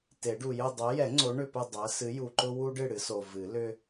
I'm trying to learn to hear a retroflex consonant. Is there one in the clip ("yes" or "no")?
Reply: yes